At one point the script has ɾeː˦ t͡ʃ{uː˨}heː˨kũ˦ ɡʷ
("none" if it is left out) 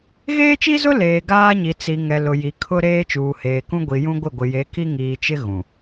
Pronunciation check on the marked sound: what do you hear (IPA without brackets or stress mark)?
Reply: uː˨